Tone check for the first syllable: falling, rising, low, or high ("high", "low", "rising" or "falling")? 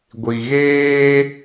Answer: low